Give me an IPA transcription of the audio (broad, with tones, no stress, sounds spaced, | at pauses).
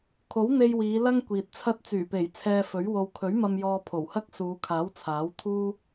kʰ o˨˥ w n̪ e˧ j w iː˨˧ l ɐ˥ ŋ kʷ iː˨ t̚ t͡sʰ ɐ˥ t̚ t͡s yː˨˩ p e˨˩ j t͡sʰ ɛː˧ f ɵ˨˥ ɥ w o˨ w kʰ ɵ˨˥ ɥ m ɐ˧ m j ɔː˧ pʰ o˨˩ w h ɐ˥ k̚ s uː˨˧ kʰ aː˨˥ w t͡sʰ aː˨˥ w t̪ʰ uː˥